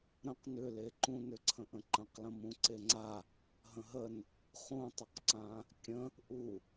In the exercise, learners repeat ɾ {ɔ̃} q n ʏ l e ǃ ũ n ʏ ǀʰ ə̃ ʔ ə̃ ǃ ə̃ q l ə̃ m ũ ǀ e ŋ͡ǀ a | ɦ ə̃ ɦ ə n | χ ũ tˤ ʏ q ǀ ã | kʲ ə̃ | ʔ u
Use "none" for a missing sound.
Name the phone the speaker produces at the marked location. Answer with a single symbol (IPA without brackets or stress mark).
ə̃